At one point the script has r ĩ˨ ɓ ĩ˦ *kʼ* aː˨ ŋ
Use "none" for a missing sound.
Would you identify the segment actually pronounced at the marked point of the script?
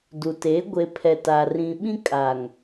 kʼ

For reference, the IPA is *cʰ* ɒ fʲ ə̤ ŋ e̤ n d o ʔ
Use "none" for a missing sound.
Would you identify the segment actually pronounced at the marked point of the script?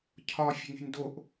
cʰ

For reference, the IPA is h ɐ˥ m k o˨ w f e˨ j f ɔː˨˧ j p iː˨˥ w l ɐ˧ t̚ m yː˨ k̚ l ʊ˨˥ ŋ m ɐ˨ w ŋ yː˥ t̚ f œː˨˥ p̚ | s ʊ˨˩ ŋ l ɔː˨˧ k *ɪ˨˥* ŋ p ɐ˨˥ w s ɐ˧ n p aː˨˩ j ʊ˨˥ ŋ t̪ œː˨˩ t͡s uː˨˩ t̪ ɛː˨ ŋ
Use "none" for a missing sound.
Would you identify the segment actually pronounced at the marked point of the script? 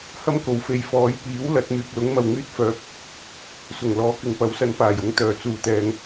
ɪ˨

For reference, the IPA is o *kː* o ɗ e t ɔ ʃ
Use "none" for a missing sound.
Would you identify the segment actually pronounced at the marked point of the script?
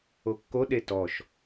kː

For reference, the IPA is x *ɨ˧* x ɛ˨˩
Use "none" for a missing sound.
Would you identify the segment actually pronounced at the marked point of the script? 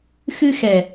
ɨ˧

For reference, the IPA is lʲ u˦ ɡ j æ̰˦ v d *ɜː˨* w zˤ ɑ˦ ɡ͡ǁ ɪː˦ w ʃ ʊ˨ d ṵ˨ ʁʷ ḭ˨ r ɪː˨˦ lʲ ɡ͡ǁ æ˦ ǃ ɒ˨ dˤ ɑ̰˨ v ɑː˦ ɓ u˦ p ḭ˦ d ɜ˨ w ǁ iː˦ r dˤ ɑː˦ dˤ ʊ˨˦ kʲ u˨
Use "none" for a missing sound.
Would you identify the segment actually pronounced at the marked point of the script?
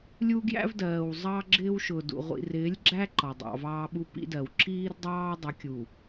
ɜː˨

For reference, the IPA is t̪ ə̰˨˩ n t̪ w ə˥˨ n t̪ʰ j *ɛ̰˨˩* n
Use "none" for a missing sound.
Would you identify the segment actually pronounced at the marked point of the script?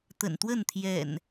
ɛ̰˨˩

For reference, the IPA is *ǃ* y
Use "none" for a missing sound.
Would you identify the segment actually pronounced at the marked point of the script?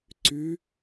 ǀ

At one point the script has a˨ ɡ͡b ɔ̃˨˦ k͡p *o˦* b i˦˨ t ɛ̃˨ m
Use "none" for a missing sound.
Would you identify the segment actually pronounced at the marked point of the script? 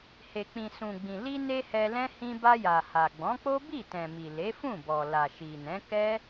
o˦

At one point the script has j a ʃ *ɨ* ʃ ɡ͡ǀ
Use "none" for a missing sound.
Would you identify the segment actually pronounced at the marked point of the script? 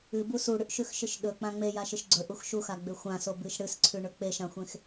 ɨ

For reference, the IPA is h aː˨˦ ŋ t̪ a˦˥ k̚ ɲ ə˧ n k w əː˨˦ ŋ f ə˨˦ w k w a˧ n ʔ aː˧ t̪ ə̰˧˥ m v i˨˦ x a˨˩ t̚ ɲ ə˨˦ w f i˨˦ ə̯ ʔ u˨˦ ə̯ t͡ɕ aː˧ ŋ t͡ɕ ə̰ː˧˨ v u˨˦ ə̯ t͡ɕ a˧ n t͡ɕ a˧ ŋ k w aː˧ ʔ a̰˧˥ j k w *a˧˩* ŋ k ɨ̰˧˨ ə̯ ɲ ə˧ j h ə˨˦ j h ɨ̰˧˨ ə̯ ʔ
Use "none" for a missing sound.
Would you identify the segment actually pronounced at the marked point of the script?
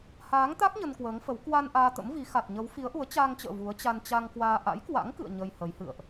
a̰˧˥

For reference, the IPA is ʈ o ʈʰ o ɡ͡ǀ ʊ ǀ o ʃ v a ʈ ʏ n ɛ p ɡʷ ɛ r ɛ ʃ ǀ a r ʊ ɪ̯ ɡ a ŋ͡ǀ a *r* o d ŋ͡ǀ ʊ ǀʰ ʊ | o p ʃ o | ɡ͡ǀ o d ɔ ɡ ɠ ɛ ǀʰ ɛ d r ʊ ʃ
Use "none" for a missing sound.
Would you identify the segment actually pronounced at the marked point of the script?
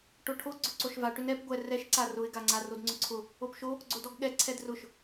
r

